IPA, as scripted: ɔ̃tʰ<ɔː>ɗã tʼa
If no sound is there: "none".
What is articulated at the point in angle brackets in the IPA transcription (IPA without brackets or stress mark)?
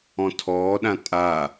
ɔː